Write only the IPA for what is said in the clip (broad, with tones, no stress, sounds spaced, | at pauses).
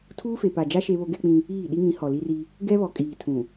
tʰ uː˦ f e˨ p a˨ d͡ʒ a˦ ʃ e˦ β o˦ ɡ ɛ˦ k͡p ĩ˦ | iː˦˨ ɗ i˦ ŋ ĩ˨˦ h ɔ˨ l i˦ r i˦ | ɡ ɛ˦ β ɔ˨ kʼ iː˨ tʰ ũ˨